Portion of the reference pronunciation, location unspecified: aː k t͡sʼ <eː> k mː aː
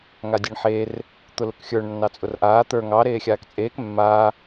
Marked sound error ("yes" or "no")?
no